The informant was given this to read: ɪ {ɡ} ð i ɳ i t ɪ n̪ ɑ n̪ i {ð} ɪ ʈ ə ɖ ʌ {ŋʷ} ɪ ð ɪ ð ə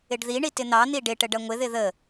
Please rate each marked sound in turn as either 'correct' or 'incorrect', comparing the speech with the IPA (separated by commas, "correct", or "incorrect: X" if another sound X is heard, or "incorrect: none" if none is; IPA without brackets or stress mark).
incorrect: ɖ, incorrect: ɖ, correct